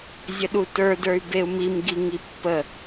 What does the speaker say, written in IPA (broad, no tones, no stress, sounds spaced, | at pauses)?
zʲ ə ɗ u t ə˞ d ə˞ y̯ b e u̯ m i m ɡ i ŋ i pː ə